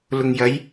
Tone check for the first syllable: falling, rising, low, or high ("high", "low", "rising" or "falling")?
low